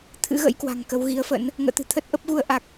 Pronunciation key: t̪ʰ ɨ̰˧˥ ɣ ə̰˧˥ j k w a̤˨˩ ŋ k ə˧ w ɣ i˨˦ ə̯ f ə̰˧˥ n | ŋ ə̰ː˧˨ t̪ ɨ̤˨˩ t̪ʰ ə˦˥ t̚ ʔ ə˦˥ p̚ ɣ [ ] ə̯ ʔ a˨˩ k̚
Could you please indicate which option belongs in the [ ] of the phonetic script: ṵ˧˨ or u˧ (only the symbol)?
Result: u˧